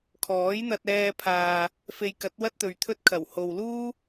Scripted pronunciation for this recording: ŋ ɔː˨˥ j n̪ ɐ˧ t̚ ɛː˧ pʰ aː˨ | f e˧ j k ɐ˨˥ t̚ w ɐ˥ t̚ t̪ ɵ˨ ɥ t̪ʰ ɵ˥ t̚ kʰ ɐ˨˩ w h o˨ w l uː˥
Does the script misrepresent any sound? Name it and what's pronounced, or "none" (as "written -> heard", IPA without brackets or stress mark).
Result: ŋ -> kʰ